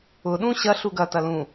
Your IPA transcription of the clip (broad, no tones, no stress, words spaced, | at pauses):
ʊ ɗũɕɐ ɬuɡɐtɐ lũ